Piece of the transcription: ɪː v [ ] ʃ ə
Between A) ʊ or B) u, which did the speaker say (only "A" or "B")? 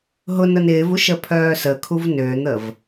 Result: B